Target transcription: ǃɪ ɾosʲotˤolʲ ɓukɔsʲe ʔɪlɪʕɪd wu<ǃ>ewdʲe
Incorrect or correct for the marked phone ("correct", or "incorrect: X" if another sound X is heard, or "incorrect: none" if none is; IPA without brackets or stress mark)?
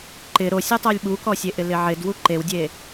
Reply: correct